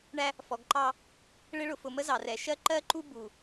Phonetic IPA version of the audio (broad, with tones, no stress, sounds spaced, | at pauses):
ɳ æ˦ | f ɔ˨ ɡ ǃ ɑ˦ | ɭ ɪ˦ ɭ ʊ˨ f ʊ˨ m ə˦ z ɑ˨ r ɛ˨ ʃ ɜ˦ ǃ ɜ˦ ǃ u˦ b u˨